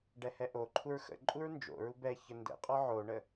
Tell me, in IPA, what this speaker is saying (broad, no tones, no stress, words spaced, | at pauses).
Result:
ɖɛhɛʔoǃʰuɹ xə̰ ǃʼuɹnd͡ʒo̰ɹu bɛçə ndə̰qʼɔ ʕoɳə